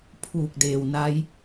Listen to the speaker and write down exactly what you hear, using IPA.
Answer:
pʰuː˧˩k̚ deː˩wna˧˥j

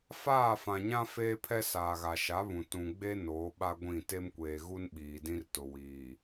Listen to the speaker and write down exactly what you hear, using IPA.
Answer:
faː˦˨fã˨ɲã˦ feː˦pʰɛ˦saː˨ɣa˨ ʃa˨˦βũ˨ tũ˨ɡ͡be˦ noː˨˦ɓa˦ɡʷĩ˦˨ te˦mkʷeː˨ɣu˦n ɓiː˨dĩ˦rtʊ˨ wiː˨

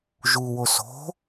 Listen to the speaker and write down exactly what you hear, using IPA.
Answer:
ʒu woso̤

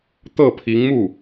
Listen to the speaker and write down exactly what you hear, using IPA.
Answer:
t̪ɤ˥˩pʰi˧˥ŋmu˥˩

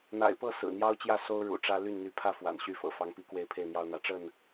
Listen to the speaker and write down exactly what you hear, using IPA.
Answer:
n̪a̰˨˩ɪ̯pɤ˥˨ sɹ̩˨˩n̪jɑ˦ʊ̯t͡ɕjä˥˨ so˦ʊ̯ ɻṵ˨˩ʈ͡ʂä˦ ly˥˨nn̪y˨˦pʰä˥˨ fwa̰˨˩nɕy˦fɤ̰˨˩ fɑ˨˦ŋpi˨˦ kwe˥˨ɪ̯pʰe˥˨ɪ̯n̪jɑ˦ʊ̯n̪ä˨˦ ʈ͡ʂə˥˨n

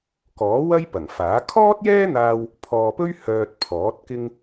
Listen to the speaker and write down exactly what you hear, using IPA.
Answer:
kɔː˨˥wɐ˥j pɐ˨˩ŋfaː˨˥ kʰɔː˥t̚jɛː˥n̪aː˧w | pʰɔː˨pɵ˥ɥ hœː˨t̚ pʰɔː˨˥t̚kɪ˥ŋ

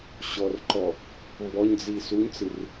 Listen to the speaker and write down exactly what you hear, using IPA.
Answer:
ɕɔrǃɔ | mbɔɲd͡zi suɲt͡sɯr

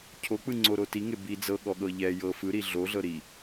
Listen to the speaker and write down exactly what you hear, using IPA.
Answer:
cʰok͡pɯŋ͡ǀoɾo tiŋe bi d͡zɤɠɔɠɤ ʎɛ jɤ fɯɾi ɮoɮɤ ɾi

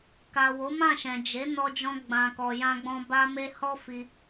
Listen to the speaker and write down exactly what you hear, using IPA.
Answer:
ka˨ wo˨˦mã˦˨ʃɛ̃˨ d͡ʒe˨˦ nɔ˧d͡ʒɔ̃˧ɡ͡bã˨kɔ˨ jã˧ɡ͡bɔ̃˧ ba˦me˦ hɔ˦fi˧

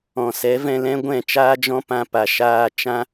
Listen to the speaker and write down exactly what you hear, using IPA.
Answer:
ɔ̃˨sɛ˨˦vɛ̃˧lɛ̃˦ ɡʷɛ̃˦˨t͡ʃaː˦d͡ʒɔ̃˦pã˧ pa˨ʃaː˧ t͡ʃã˦

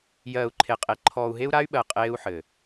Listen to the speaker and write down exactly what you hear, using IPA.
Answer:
jɜː˨u̯ ǃʰe˨qʼe˨ ǃʰɔː˨u̯ɦe˦u̯ɾa˦y̯ɓɜ˨ qʼeː˦u̯ħɘ˨

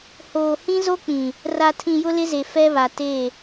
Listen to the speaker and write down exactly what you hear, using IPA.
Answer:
hoː˨hĩ˦zo˦k͡pĩ˨ | ra˨tʰĩ˨jʊ˦ lɪ˦ze˨ fɛ˦βa˨ te˦˨

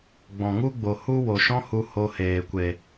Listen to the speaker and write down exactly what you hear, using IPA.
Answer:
ɡ͡bɔ̃˨ŋu˦ɡ͡bo˨ hu˦wo˨ ʃɔ̃˦hu˧ ho˧heː˨kʷe˨

